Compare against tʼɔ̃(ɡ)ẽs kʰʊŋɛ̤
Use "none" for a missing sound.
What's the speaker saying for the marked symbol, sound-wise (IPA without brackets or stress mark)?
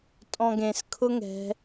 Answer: ɡ